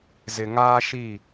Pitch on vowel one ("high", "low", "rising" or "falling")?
low